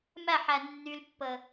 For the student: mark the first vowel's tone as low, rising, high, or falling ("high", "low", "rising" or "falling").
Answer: falling